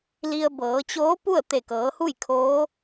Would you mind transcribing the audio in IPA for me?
li˧ə̯bɤː˩˧ t͡ɕoː˧˥pu˥˨ə̯ t̪e˧˩kɤː˩˧hu˥˨j kʰoː˧˥

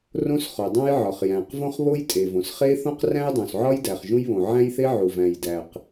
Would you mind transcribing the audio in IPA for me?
rõ˥sχo˩dˤõ˥jʕɒ˩χ jæ̃˩qvõ˥χβo˥j tʼe˩võ˩sχe˥ θõ˥qræ̃˥jdˤõ˩sʕɒ˥j dæ˩χʒũ˥jβõ˩ ʕæ̃˥jθe˥ ʕu˩væ̃˩jdæ˩q

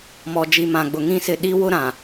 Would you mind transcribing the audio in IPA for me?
mɔ˨d͡ʒi˨mã˨ɡ͡bʊ˨ ŋĩ˦sɪ˦˨ ɗi˦wʊ˦ɾã˨

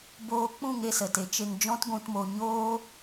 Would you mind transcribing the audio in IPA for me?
boː˧k͡pũ˦˨ŋe˧ sə˨te˨˦ t͡ʃe˧ŋd͡ʒɔ̃˦t ɡʷũ˧tmo˧ ɲoː˦

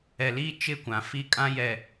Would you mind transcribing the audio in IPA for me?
ɛ˨liː˦ t͡ʃɪ˦˨kʷã˨fi˦˨ kʼã˦jɛ˨

